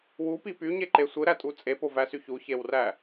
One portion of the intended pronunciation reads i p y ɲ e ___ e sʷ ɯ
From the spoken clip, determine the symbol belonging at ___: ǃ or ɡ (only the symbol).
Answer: ǃ